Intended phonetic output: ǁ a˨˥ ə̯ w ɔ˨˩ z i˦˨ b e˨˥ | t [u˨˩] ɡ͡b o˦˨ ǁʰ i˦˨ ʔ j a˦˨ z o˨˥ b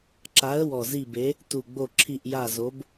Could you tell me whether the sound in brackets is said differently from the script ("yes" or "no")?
no